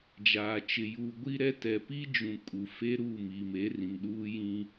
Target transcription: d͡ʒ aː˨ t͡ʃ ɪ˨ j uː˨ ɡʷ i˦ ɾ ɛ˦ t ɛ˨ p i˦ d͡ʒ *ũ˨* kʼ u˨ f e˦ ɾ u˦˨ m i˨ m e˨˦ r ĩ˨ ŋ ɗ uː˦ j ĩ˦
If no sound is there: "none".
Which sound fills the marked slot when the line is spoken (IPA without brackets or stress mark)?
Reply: ũ˨